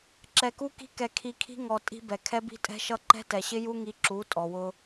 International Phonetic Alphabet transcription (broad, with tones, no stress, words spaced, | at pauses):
ǁɛ˧ku˦ki̤˦ kɛ˧kʰi˧kʰi̤˦ ŋɔ˧ tʼi̤˧bɛ˨ kʰɛ˦bi̤˦tʼɛ̤˦ʃʌ˦ ǃɛ̤˦tɛ˨ɕɪ˦ju˦ ŋi˧ ǁu˨˦ tʼɔ˨wʊ˧